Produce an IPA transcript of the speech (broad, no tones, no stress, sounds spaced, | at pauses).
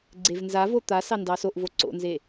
ɡ͡ǀ e v n z a v o t̪ a s ɑ n d ɑ s o ʔ v o ǀ o̰ n z e